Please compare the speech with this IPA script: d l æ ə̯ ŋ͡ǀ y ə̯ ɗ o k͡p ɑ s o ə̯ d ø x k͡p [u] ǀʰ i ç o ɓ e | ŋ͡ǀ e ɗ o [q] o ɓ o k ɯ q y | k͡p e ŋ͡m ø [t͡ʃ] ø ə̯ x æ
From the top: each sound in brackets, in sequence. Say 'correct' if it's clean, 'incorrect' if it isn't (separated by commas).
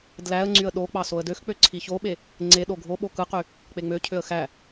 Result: incorrect, incorrect, incorrect